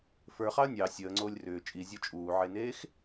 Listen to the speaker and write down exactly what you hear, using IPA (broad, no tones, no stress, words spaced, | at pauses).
fə˞χɑə̯ nʲɑ sʲəːŋ͡ǀoːlʲ rʏː t͡ʃʼizʲɔ t͡ʃʼuːʕeneːx